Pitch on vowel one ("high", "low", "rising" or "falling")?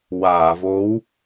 low